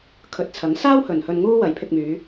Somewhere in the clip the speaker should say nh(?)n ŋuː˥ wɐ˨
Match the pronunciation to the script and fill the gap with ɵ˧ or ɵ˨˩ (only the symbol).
ɵ˧